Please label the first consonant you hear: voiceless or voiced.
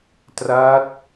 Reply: voiceless